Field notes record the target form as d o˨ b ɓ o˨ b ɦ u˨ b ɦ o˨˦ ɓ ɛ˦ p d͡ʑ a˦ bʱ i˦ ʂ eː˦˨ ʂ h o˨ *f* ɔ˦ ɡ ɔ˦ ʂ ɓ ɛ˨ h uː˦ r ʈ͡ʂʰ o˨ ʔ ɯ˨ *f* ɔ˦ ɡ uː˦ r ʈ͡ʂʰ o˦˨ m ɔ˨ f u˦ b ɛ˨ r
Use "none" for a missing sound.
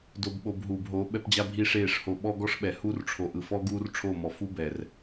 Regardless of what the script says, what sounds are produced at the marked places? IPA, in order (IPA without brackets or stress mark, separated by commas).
ɓ, f